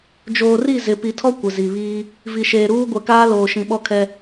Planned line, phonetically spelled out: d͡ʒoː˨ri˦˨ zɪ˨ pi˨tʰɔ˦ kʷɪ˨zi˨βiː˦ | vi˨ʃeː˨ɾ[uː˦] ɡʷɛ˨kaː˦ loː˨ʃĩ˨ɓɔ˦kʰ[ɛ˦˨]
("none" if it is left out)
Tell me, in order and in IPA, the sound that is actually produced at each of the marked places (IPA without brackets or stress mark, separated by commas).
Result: uː˦, ɛ˦